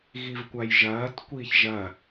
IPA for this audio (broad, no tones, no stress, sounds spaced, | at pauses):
ɣ i v kʷ a j ʒ ɐː t kʷ iː ç ʒ ɐ